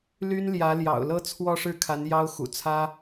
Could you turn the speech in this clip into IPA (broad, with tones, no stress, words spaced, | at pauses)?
ly˥nljä˧˥ljɑ̰˨˩ʊ̯ lɤ˥˧ t͡sʰwɔ˥˧ʂɻ̩˥˩kʰa˧˥n jɑ˥ʊ̯xṵ˨˩ t͡sʰä˥